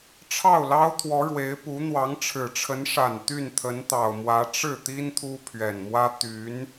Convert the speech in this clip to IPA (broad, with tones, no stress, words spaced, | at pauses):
ʈ͡ʂʰɑ˥˩ʊ̯lɑ˥ʊ̯t̪ʰwɔ˧˥ ɻwe˧˥ɪ̯pu˧˥ n̪wɑ˧˥ŋʈ͡ʂʰɻ̩˨˩ʈ͡ʂʰə˧˥n ʂa˨˩n t̪y˥˩nt̪ʰə˧˥nt̪ɑ˨˩ʊ̯mwä˧˥ ʈ͡ʂɻ̩˥˩t̪i˥n t̪ʰu˥pʰɥɛ˨˩nmwä˥ t̪y˧˥n